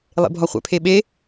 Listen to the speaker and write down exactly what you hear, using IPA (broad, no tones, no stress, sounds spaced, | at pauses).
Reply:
lˠ ḛ bʱ ɒ χʷ ɛ̰ pʰ e ɓ e